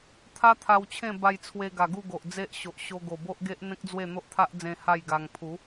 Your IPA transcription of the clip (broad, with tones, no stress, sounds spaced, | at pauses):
t̪ʰ a˦ t̪ʰ a˧ w t͡ɕʰ ẽ˥˧ b a˧ j t͡sʰ w e˧ ɡ a˨˩ ɡ u˥˧ ɡ o˨ ʔ d͡z e˦ ʔ ɕ o˨ ʔ ɕ o˧ ɡ o˨˩ b o˦ ʔ ɡ e˦ ʔ n̪ ẽ˦ k̚ d͡z w e˥˧ n̪ o˦ ʔ t̪ʰ a˦ ʔ d͡z ẽ˧ h a˥˧ j ɡ a˧ ŋ pʰ u˨˦